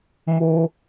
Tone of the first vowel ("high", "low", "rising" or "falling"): high